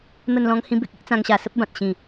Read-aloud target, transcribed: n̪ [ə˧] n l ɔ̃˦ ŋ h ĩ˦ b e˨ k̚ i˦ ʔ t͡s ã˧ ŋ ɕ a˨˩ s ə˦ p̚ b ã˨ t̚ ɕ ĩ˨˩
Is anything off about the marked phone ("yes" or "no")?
yes